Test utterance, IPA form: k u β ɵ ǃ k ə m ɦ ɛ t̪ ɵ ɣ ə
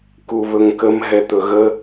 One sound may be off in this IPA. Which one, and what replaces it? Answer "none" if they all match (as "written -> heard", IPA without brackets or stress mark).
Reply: ǃ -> ŋ